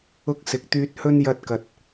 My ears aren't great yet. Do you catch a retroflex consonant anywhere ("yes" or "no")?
no